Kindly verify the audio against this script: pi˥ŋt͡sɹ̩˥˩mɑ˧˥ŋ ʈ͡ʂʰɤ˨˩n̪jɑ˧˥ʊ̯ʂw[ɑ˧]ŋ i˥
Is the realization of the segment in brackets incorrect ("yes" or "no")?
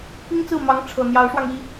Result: no